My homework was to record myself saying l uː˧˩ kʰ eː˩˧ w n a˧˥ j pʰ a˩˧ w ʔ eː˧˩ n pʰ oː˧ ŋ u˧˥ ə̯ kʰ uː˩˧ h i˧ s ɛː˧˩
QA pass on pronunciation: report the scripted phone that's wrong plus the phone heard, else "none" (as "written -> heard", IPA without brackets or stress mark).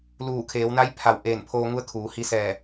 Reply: none